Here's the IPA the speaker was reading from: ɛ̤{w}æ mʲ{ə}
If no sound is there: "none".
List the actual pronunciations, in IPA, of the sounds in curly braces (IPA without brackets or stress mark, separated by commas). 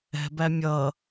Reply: b, ʌ